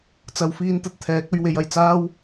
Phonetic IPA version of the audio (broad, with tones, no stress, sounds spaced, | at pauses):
t͡s ɐ˨ w f iː˧ n t̪ ɐ˨ t̚ t̪ʰ ɛː˨˥ k̚ ɵ˨˧ ɥ w e˨˧ j ɐ˨˩ j t͡s aː˥ w